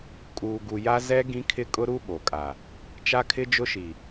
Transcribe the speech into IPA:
kʼuː˨ɡu˨ja˦ zɛ˦ ɡĩ˦kʰɪ˦ kʼʊ˦ɾu˦ ɓo˨kʼa˨ | t͡ʃa˦kʰɪ˦d͡ʒʊ˦ʃi˨

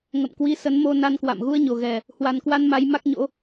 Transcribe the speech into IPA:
ŋə̰˧˨mkwi˧sə˨˦n mo˧na˧nkwa̰˧˨m ɣu˧ə̯ɲo˨˩ɣɛ˨˩ | hwa˨˩nkwa˧n ma˨˦jma˦˥k̚ɲo̰˧˥

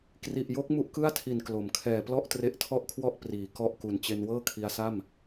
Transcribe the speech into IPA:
kri˨˩ʔjo˦˥k̚ mu˥˩ʔkɯ˥˩a̯tʰi˨˩n klo˩˦mkʰɛː˨˩ plɔ˥˩ʔtre˦˥ʔtʰɔ˥˩ʔkʰwɔ˥˩ʔ priː˩˦ kɔ˥˩ʔku˨˩n t͡ɕe˧nwɤː˥˩kʰi˧a̯sa˥˩m

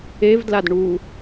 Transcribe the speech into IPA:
evdlad ɳu

